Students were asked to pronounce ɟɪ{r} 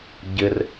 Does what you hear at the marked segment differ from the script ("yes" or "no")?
no